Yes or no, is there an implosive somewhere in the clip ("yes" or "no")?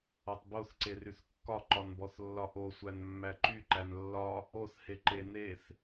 no